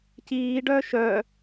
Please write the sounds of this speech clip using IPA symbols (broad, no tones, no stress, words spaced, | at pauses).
ciːɖœː ʃœ